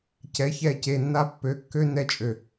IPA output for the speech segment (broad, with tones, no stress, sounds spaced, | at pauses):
c ɛ˨˦ ç ɛ˦˨ c e˨ nː a˦ pː ø˨ kː ø˦ n ɛ˦ t͡ʃʼ ø˨